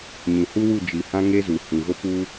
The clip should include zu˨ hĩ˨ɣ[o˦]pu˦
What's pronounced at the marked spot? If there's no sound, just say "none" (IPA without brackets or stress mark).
o˦